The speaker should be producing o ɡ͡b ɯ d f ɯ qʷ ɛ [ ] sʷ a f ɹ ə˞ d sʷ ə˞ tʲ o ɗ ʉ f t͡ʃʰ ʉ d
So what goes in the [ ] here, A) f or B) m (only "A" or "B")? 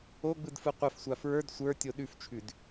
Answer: A